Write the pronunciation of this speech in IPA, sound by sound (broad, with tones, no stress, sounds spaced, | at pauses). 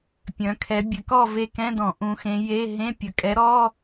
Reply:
pʲ œ̃˩˧ kʰ ɛ˩˧ bʲ ɘ˩˧ k ɔ˦˨ v e˦˨ k ɛ̃˧˥˧ d ɔ̃˧˩˧ ʔ ũ˩˧ x ẽ˩˧ j e˧˥˧ ɦ ẽ˧˥˧ pʲ ə˩˧ kʼ ɛ˨˥ ɾ ɔ˧˥˧